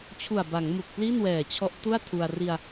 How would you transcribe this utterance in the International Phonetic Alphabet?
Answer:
t͡ɕʰ u˨˩ a̯ b a˩˦ ŋ m u˨˩ k̚ p l i˥˩ n w ɛː˨˩ t͡ɕʰ ɔ˦˥ ʔ t u˥˩ a̯ tʰ u˧ a̯ r i˧ a̯

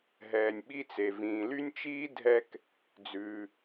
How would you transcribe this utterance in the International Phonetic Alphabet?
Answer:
ɦ ɛː˩ nʲ ɓ i˧ t͡s e˩ v ĩː˩ l y˥ nʲ t͡ʃ iː˥ dʱ ɛ˧ k | d͡z ʉː˩

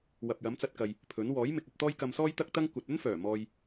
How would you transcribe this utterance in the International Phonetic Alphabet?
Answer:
w ɐ˨ p̚ j ɐ˨˥ m t͡s ɐ˧ t̚ k ɐ˨ j | pʰ ɵ˨˥ n w ɔː˨˥ j m ɪ˨ k̚ ɐ˧ p̚ t̪ ɔː˥ j k ɐ˧ m s ɔː˥ j t̪ ɐ˥ k̚ t̪ ɐ˥ ŋ kʷ ɐ˨ t̚ ɵ˥ n f œː˨˩ m ɔː˨ j

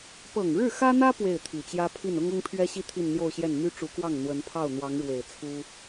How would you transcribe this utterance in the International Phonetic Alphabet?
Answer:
p ɤ˨˩ ŋ ɻ ɻ̩˥˩ x ä˥ n̪ ä˥ p w e˥˩ ɪ̯ t̪ʰ i˨˩ t͡ɕ j ä˥ pʰ i˥˩ n ʊ˥ ŋ ʊ˥ ŋ pʰ ɥ ɛ˥ ɕ i˥˧ t̪ʰ i˥˧ n n̪ j o˥˧ ʊ̯ ɕ j ɛ˥˩ n m y˥ ʈ͡ʂ u˧˥ k w ɑ˥˩ ŋ n̪ w ə˧˥ n pʰ ɑ˥˩ ʊ̯ n̪ w ɑ˧˥ ŋ ɻ w e˨˩ ɪ̯ t͡sʰ u˥

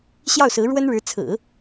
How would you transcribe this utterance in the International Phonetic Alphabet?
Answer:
ɕ j ɑ˥˩ ʊ̯ s ɹ̩˧˥ ɻ w ə˥ n ɻ ɻ̩˧˥ t͡sʰ ɹ̩˨˩˦

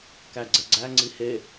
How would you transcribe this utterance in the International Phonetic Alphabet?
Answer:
k æ ɡ͡ǀ ɛ ɡ͡ǀ æ ŋ͡ǀ i h e

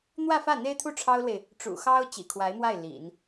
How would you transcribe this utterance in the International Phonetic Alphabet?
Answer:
n̪ w ä˥˧ f ä˥˩ n̪ e˥ ɪ̯ t̪ʰ u˥˩ ʈ͡ʂʰ ɑ˥ ʊ̯ l w e˨ ɪ̯ | ʈ͡ʂ ṵ˨˩ x ɑ˥ ʊ̯ t͡ɕ ḭ˨˩ kʰ w a˧˥ ɪ̯ m w a˥˩ ɪ̯ l ḭ˨˩˦ n

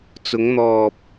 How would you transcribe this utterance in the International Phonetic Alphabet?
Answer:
t͡s ʊ˨˧ ŋ n̪ ɔː˨ p̚

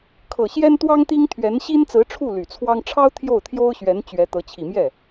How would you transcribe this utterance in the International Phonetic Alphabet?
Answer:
kʰ ɤ˨˩ ɕ j ɛ˥ n t̪ w ɑ˥ ŋ t̪ i˥ ŋ t̪ʰ ɥ ɛ˧˥ n ɕ i˥ n t͡s ɹ̩˧˥ ʈ͡ʂʰ u˥˩ l y˨˩ t͡sʰ w ɑ˥ ŋ ʈ͡ʂʰ ɑ˥ ʊ̯ t̪ʰ j o˥˩ ʊ̯ t̪ʰ j o˥ ʊ̯ ɕ ɥ ɛ˧˥ n t͡ɕ ɥ ɛ˧˥ t̪ ɤ˧˥ t͡ɕʰ i˨˩ m j ɛ˥˩

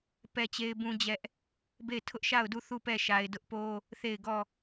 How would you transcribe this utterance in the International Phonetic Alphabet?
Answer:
p ɛ˦ t͡ɕ e˦ ɪ̯ b ũ˦ d͡ʑ ɛ˦ ʔ | b e˦˨ ɪ̯ tʰ ʊ˦ ʔ ʃ a˦˨ ʊ̯ d u˦˨ θ u˦˨ p ɛ˦˨ ʃ a˨ ɪ̯ d ʊ˦ ʔ p o˦ | θ e˦˨ ɪ̯ ɡ ɔ˦˨

